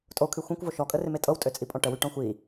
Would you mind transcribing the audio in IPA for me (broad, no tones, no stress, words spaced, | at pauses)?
tʼokʰy xʷɛ̃kʷvo ʃɔkʼərɪme tʼɤwtʼøt͡sʼipʼɔ̃ ʈəwyʈɔ̃ xʷi